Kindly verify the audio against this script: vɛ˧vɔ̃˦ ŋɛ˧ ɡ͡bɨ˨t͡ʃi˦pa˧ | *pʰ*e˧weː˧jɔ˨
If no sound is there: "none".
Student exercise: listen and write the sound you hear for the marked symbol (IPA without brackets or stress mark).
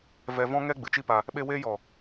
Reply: ɓ